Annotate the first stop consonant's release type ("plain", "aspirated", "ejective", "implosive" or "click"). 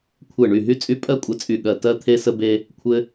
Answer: aspirated